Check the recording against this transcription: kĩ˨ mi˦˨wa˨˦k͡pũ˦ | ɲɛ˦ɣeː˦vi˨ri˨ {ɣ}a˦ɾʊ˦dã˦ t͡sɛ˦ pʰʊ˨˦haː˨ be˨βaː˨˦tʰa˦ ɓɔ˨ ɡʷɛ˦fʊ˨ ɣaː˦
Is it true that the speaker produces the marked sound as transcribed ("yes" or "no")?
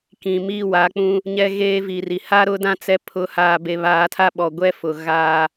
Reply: no